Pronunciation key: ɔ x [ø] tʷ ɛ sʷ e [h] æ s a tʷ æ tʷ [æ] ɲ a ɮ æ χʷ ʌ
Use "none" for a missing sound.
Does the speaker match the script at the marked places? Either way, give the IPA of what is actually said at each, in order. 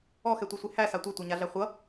ɛ, h, a

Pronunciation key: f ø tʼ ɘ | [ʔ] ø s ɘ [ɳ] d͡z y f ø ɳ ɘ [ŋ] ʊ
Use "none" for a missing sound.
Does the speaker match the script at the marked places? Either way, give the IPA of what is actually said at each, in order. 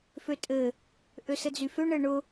ʔ, none, ɳ

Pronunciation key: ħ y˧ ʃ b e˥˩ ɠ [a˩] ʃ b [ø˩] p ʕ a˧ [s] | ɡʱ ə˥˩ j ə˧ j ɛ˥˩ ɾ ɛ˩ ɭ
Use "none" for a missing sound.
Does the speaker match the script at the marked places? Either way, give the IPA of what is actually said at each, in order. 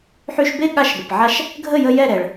a˧, ə˩, ʃ

